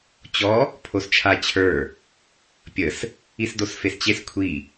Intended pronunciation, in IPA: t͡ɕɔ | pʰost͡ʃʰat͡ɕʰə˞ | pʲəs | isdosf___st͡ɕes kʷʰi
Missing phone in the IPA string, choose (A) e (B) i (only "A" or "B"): A